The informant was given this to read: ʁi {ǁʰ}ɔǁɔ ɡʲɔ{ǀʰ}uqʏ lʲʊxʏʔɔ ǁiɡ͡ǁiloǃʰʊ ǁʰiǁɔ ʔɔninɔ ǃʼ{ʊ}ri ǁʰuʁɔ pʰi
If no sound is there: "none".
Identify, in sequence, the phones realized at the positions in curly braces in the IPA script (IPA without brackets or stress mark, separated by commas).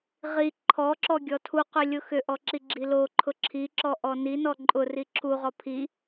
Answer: ǃʰ, tʰ, ʊ